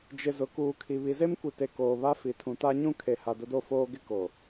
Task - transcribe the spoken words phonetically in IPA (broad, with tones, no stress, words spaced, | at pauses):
d͡ʒɪ˨ zʊ˨kuː˨kʰi˨ βi˨ze˦mkʷi˨te˨ koː˨βa˦fi˨ tʰũ˨ta˦ɲũ˦ kʰe˨ha˨ dʊ˦do˦foː˦ ɡɪ˦ko˨